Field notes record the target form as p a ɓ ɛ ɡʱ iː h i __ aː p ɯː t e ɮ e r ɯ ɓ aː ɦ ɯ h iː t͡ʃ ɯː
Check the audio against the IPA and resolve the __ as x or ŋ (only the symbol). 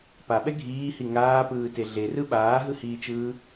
ŋ